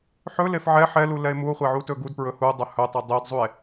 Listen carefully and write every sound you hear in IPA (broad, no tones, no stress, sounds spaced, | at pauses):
ħ ɵ l e f ʕ ɛ ħ ɛ l u l ɛ e̯ m u o̯ χʷ ɛ ʕ u t ɵ ɡ u d p ɹ ɵ h u dˤ ɵ h ɵ tˤ ɛ dˤ e d zˤ u e̯